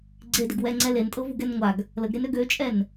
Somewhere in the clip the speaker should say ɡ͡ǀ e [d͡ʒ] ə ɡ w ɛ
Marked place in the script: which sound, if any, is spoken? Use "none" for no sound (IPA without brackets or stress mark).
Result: d